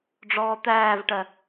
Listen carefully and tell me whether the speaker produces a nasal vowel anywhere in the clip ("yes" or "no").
no